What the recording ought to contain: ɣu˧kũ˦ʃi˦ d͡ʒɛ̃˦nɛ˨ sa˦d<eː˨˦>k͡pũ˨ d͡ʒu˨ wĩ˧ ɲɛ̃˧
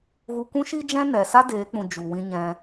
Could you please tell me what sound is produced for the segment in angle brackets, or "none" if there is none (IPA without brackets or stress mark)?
eː˨˦